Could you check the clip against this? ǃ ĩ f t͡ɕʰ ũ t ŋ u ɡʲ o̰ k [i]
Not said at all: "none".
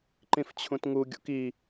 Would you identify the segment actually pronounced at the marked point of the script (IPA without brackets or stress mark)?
i